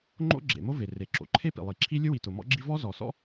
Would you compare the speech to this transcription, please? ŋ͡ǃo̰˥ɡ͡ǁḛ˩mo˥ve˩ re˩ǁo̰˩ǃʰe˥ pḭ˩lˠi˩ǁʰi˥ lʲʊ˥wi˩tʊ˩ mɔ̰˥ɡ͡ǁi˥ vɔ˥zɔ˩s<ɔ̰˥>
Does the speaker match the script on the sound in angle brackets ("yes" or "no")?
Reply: yes